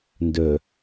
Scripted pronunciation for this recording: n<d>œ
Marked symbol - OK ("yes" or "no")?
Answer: yes